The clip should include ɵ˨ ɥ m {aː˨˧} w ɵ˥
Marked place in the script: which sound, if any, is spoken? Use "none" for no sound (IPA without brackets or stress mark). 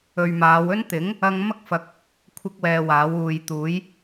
aː˨˧